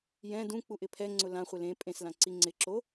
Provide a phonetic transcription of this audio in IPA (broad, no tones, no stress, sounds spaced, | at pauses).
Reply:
j ɛ̃ d ũ k͡p u ʔ ɪ pʰ ɛ ŋ͡ǀ ʊ l ã χʷ ɪ l ẽ pʼ ẽ s l ã ǀ i ŋ͡ǀ ɪ ǁ o